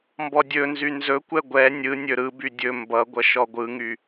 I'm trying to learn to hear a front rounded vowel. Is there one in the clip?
yes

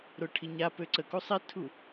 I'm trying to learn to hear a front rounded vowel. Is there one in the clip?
yes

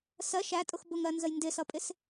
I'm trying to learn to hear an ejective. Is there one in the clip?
yes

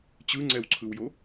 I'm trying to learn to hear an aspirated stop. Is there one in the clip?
yes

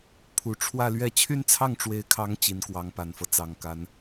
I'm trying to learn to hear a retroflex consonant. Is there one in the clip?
yes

